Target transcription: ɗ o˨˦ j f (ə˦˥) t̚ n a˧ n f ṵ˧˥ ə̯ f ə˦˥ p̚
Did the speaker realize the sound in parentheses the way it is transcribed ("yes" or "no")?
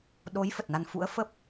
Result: no